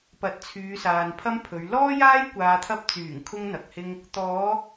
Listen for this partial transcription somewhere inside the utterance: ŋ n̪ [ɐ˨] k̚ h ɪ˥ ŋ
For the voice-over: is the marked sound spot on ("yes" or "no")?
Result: yes